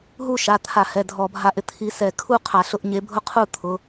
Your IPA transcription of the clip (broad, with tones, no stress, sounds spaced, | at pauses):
ɦ u˥˨ ʃ a˩˧˩ t̪ʰ a˧˩˧ h ɛ˩˧˩ dʱ ɔ˧˩˧ bʱ a˧ ʔ ɪ˧ t̪ʰ i˧ s ɛ˧˩˧ kʰ u˥˨ qʰ a˧˩˧ ɬ ʊ˥˨ ʔ ɲ e˨˥ bʱ ʊ˥˨ qʰ u˥˨ t̪ʰ ʊ˩˧˩